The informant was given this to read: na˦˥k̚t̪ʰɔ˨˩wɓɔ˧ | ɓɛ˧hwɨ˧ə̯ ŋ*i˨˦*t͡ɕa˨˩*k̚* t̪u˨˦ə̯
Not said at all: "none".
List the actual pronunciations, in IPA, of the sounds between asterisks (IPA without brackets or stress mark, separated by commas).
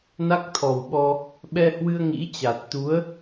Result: ḭ˧˥, t̚